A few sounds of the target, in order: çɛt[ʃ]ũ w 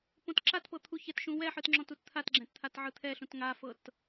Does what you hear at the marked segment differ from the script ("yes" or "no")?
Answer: no